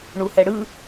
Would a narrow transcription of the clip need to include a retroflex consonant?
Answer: yes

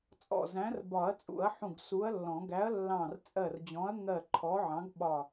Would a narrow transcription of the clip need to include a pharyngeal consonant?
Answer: yes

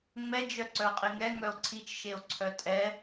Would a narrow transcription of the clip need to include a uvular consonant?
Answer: yes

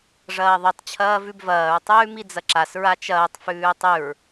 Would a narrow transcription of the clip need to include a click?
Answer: yes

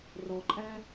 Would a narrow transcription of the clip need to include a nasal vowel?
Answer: no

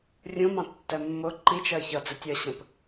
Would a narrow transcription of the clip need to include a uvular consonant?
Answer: no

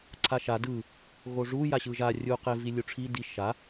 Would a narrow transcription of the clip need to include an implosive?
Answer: no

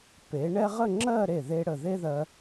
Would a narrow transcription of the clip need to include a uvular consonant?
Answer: yes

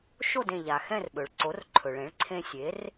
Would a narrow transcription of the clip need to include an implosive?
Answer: yes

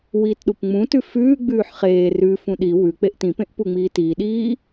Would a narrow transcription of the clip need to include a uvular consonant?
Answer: yes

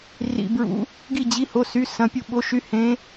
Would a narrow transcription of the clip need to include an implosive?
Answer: yes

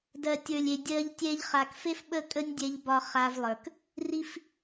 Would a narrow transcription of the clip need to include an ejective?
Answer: yes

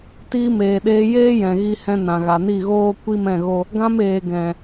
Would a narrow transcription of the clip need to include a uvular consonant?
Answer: no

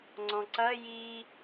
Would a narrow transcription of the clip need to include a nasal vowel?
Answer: yes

